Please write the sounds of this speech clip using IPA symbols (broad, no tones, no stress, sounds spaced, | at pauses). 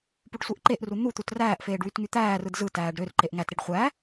p u ɖ sʷ e ʔ ǃ e ʔ r u n̪ u t̪ u t r æː ʔ f eː ɖ w y t ŋ y t̪ æː r ɯ d z ɯ t æː ɖ ɾ ø r ǃ e ʔ ŋ æ t ɾ i ɖ χʷ æ